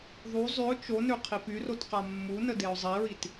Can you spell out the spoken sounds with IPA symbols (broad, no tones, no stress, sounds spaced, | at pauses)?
ðˤ u zˤ y ʊ̯ t͡ʃ o n ø qʰ i p y r o t q a mː u n ə d e ʊ̯ zˤ i ɹ i t